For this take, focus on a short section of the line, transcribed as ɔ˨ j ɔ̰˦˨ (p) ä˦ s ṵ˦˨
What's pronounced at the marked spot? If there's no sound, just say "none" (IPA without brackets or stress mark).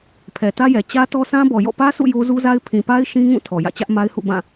p